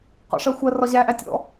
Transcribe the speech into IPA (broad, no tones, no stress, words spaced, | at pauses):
qɔ̰ʂɜxʷɜ rɒʑæʔæ tʲɔ̰